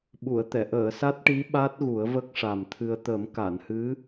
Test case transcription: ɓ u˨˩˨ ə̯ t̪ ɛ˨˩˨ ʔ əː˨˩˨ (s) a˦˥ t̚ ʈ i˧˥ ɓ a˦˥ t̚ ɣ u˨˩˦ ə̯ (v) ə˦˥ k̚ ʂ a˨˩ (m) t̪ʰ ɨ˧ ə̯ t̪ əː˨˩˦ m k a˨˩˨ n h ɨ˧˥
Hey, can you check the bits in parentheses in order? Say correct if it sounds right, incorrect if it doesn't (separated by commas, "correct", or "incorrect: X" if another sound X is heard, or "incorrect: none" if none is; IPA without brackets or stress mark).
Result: correct, correct, correct